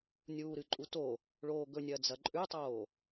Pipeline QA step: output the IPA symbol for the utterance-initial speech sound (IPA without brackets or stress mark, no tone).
nʲ